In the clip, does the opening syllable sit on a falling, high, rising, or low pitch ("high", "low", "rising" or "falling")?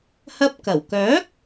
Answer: high